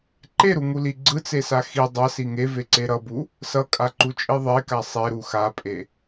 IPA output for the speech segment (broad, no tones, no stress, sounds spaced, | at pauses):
ǃ e ɾ u ŋ u l i ɡ͡ǀ ɯ t͡s e s a x i dˤ a s i ŋ e v e ǀ e ɾ ʌ b u | s ʌ kʼ a ǃ u t͡ʃʼ i ðˤ e k a sˤ e ɾ u x a pʼ e